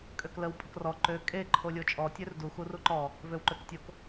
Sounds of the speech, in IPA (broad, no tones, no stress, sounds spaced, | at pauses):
kʼ ø k l ə w pʼ ə k r ɔ ǃ ø kʼ e ǃʰ o lʲ o t͡ʃʼ ɔ tʲ ø r d u x u r u ǃ ɔ | v ø w ǃ ø k tʲ o k